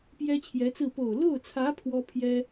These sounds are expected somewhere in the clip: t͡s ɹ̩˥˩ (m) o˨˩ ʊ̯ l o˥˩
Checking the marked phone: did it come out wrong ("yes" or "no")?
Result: yes